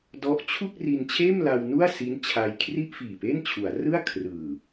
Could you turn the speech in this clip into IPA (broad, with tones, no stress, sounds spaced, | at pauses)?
d ɔ˦˥ ʔ t͡ɕʰ u˥˩ k̚ r i˧ n t͡ɕʰ eː˥˩ m l a˧ w n u˥˩ a̯ s i˦˥ n t͡ɕʰ a˧ j kʰ r i˥˩ ʔ f iː˨˩ p e˥˩ n t͡ɕʰ u˩˦ a̯ r ɯ˥˩ a̯ kʰ r ɯː˨˩